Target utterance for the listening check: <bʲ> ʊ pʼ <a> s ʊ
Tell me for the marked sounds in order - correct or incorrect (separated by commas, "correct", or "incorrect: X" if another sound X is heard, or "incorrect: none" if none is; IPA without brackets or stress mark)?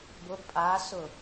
incorrect: b, correct